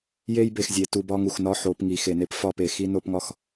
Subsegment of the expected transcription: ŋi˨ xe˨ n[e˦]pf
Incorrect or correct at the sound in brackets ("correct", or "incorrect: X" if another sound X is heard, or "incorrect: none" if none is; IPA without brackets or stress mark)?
correct